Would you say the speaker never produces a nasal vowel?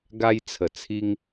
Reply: yes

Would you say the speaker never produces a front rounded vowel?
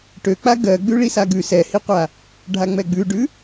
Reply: no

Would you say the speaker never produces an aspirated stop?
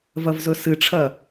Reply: no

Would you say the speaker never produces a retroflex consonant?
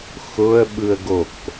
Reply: yes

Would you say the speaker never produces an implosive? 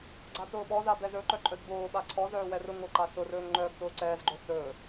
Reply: no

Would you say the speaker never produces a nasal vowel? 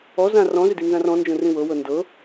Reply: no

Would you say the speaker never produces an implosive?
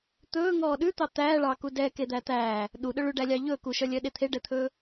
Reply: no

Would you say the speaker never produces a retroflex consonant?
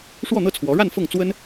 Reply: no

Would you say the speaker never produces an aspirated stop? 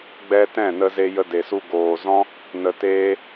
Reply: yes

